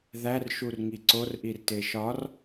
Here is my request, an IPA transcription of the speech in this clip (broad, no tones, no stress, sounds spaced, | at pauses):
ð æ r ʃ u r ŋ i ǀ o r ʔ i r t e ʃ ɒ r